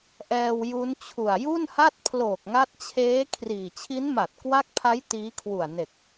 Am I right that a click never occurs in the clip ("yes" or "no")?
yes